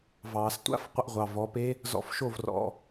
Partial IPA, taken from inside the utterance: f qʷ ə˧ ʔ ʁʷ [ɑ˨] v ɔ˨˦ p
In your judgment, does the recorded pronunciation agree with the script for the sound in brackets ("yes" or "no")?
yes